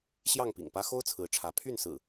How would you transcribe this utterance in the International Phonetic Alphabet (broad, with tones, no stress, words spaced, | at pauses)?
ɕjɑ˥˨ŋpḭ˨˩ŋpä˦ xo˦ʊ̯ t͡sʰɹ̩˨˦ʈ͡ʂʰä˨˦ pʰy˥˨nsɹ̩˨˩